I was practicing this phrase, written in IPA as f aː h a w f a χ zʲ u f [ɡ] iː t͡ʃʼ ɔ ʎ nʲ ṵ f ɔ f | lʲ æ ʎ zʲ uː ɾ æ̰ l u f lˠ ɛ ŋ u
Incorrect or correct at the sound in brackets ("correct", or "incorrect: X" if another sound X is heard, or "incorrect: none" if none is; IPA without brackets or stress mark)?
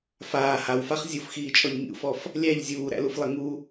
incorrect: x